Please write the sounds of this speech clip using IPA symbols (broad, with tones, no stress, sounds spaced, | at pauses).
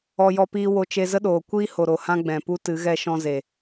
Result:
ɔ˧ j ɔ˧ p iː˧ w o˧ t͡ʃ e˧ z ə˦ ɗ oː˨ kʷ iː˦ h o˨ ɾ o˨ h ã˦ ɡ͡b ɛ̃˨ p u˦ t ɨ˨˦ ɣ ɛ˦ ʃ ɔ̃˧ z e˨